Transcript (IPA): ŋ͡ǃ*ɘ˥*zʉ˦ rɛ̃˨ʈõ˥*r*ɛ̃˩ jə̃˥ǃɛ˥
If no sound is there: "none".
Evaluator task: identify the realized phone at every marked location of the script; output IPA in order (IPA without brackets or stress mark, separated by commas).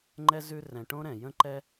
ɛ˥, ɾ